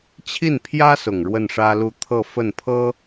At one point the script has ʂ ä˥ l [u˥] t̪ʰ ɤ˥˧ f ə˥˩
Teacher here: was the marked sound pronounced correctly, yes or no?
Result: no